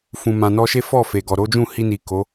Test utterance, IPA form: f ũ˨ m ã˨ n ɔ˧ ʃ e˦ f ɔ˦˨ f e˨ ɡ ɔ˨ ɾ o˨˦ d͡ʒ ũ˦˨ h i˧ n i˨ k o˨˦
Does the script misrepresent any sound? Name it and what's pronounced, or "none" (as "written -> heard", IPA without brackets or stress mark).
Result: none